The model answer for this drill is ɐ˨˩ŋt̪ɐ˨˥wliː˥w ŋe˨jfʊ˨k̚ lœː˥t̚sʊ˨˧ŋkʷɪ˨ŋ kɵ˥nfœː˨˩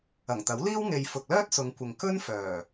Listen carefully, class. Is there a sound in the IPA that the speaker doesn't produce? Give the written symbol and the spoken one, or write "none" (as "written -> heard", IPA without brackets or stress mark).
none